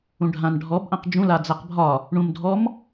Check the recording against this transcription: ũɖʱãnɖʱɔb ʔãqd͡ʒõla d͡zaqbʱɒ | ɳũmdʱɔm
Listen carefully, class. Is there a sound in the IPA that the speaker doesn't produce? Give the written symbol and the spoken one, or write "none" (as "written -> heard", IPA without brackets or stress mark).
õ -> ũ